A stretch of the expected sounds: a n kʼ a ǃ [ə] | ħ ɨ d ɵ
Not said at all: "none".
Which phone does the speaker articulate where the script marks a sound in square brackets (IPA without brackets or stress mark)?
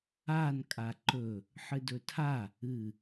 ɵ